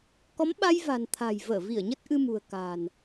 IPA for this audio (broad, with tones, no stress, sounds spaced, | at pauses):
k ɔ˨˦ m ɓ a˧ j v a̤˨˩ n t̪ʰ a̤˨˩ j v əː˧˩ v i˧˩ ə̯ ɲ ə˦˥ t̚ ʔ ɨ˧ m ṳ˨˩ ə̯ k a̤ː˨˩ n